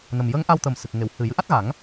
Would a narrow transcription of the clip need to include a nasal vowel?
no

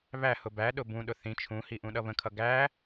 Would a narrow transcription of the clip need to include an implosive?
yes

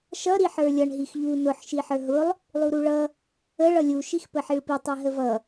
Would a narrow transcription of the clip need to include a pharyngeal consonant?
yes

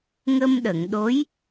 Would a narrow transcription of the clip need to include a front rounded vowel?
no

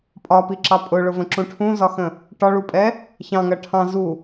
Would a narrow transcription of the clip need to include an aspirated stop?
yes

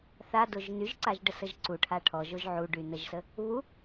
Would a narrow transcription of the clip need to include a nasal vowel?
no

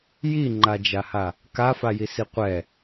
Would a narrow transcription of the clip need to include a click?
yes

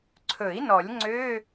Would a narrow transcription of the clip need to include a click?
yes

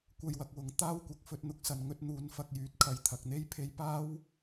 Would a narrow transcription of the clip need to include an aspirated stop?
yes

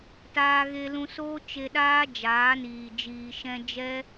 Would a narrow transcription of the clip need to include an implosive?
yes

